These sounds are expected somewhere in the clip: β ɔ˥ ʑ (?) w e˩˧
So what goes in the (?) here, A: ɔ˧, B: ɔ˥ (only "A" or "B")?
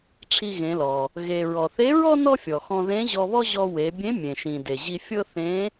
A